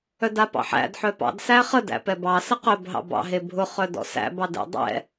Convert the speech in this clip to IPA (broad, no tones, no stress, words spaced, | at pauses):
œdapɑ̰ħæ̰d ħœpɑ̰d sæχə dæ̰pɛbɑ səqœb ɦɑ̰bɑ̰ ɦebʱʊ χœdɔ̰sæ̰ bɑdɛ̰ dˤɛ̰